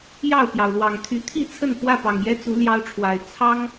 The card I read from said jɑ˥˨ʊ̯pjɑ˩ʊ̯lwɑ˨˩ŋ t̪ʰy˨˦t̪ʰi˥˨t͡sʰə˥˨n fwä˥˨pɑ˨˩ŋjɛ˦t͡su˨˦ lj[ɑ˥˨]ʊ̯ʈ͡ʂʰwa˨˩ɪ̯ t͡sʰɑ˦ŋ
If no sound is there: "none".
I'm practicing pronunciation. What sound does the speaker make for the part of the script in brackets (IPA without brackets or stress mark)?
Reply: ɑ˦